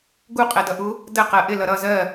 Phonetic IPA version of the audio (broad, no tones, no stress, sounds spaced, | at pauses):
ɡ u qʼ ɛ d ʌ ʔ u | d ə q ɜ ʔ ɪ l ʌ ɾ ʌ z ɜ